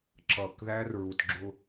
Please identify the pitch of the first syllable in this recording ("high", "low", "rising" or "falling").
low